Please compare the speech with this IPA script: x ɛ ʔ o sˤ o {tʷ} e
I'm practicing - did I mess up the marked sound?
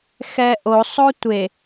no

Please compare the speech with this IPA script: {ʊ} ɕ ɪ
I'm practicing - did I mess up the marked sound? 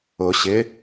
no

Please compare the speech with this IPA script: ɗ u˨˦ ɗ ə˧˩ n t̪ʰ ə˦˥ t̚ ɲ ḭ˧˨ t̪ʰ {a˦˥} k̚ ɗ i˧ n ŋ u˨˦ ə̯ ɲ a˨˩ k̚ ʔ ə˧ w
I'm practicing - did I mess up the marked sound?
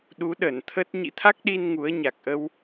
no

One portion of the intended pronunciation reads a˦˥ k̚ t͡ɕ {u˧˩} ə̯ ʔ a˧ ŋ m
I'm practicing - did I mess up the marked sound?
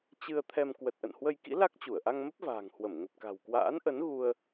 no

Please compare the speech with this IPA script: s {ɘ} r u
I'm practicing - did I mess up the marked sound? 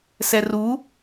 yes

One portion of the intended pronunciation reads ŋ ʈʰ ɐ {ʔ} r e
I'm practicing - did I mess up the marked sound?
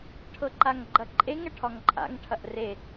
no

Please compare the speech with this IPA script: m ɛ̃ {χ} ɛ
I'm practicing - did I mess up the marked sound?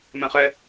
no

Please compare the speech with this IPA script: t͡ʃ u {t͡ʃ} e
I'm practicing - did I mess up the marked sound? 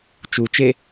no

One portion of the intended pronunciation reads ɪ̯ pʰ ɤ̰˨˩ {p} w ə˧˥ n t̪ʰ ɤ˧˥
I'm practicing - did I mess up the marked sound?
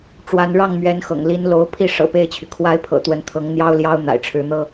yes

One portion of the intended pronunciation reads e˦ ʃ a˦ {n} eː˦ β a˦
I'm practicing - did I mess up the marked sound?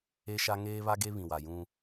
yes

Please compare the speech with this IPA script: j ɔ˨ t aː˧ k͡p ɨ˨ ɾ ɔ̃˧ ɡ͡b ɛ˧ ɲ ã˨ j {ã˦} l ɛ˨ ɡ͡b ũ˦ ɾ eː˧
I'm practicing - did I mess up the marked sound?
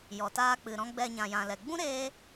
yes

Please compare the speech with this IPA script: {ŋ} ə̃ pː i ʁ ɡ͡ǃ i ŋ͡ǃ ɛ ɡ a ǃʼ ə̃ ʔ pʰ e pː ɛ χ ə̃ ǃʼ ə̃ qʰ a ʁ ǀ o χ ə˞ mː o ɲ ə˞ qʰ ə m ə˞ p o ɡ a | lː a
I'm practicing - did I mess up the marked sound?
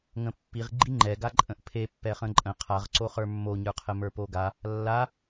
no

